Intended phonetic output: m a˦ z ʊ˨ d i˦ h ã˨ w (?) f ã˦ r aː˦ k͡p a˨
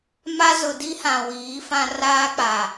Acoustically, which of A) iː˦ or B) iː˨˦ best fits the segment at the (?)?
B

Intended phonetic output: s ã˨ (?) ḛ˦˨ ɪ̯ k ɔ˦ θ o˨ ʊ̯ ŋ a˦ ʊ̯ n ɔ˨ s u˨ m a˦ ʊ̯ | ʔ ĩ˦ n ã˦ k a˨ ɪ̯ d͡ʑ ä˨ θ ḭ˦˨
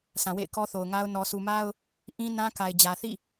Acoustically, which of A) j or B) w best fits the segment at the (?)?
B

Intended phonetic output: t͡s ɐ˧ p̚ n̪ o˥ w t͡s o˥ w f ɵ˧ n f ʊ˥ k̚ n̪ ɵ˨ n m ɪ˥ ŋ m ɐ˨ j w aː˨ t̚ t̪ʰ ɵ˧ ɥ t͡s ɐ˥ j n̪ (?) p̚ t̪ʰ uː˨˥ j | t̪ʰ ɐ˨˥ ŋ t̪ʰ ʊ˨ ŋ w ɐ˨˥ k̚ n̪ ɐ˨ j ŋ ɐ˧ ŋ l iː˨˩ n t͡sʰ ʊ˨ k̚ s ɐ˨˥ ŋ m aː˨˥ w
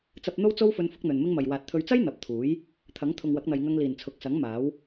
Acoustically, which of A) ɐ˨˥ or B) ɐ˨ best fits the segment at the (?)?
A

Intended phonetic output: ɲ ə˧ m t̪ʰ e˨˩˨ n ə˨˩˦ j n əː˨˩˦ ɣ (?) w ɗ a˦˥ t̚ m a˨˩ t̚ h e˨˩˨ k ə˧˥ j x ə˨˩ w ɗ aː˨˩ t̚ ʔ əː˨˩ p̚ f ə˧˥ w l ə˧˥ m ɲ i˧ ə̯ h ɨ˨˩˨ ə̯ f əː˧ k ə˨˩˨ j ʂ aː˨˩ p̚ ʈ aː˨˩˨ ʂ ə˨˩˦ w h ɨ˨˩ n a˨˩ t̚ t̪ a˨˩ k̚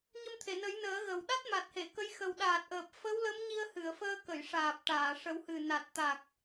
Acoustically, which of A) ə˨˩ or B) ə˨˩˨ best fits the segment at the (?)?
A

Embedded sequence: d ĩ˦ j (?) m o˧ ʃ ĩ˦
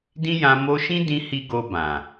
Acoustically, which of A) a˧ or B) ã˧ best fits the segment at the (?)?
B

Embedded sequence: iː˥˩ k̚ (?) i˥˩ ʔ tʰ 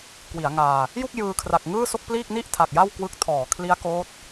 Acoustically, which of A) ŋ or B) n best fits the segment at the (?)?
B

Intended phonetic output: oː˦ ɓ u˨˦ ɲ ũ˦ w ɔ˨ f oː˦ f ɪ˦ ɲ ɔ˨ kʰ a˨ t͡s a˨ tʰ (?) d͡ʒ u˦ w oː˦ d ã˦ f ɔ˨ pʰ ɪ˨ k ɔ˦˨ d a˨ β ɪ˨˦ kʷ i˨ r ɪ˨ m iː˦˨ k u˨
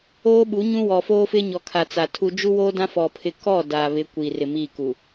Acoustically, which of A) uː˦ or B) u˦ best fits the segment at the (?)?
B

